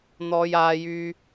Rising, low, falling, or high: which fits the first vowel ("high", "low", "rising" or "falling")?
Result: high